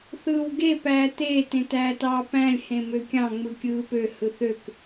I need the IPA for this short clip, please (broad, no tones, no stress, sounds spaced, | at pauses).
θ ɯː w ɡ e p æː t eː t ẽ t æː t ɑː p æ̃ lʲ h ẽ m ø kʲ ɑ̃ ŋ͡m ɯ kʲ ɯː p ø h ɯ θ ø k